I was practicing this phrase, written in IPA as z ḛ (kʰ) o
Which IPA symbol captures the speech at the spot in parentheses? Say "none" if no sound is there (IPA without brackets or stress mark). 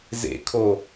kʰ